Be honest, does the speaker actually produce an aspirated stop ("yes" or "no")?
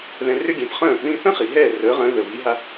no